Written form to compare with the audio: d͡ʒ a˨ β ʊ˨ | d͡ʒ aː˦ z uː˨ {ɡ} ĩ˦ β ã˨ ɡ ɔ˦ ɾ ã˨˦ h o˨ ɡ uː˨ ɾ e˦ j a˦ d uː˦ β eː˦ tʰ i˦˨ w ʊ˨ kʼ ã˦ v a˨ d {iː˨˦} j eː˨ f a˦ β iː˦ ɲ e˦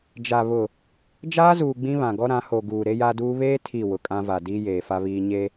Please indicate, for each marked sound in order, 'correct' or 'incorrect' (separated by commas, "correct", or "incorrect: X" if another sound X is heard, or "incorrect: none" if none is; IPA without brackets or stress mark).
incorrect: ɡ͡b, incorrect: iː˦